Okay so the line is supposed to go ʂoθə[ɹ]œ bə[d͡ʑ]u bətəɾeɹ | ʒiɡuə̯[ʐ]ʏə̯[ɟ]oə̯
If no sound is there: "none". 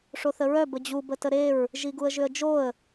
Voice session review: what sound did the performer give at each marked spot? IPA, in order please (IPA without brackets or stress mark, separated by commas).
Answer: ɹ, d͡ʑ, ʒ, d͡ʒ